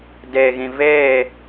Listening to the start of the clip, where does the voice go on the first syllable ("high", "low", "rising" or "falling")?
low